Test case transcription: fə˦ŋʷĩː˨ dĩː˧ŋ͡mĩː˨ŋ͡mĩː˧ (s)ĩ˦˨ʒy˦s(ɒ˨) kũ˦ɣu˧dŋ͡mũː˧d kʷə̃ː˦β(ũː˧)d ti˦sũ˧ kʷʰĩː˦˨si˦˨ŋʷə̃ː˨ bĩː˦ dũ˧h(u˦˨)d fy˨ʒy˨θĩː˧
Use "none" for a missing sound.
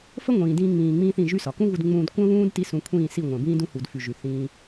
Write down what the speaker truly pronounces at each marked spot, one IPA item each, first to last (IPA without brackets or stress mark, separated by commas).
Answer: θ, ɒ˨, ũː˦, u˨